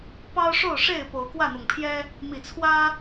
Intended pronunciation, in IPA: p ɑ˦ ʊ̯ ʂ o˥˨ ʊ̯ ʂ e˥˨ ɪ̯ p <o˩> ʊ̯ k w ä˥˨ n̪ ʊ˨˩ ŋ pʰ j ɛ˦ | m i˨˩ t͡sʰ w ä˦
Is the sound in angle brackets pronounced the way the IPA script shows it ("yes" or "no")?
no